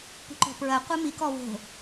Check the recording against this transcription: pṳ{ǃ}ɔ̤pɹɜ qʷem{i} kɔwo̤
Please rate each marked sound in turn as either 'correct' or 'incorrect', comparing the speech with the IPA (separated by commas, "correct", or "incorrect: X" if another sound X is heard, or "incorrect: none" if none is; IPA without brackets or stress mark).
correct, correct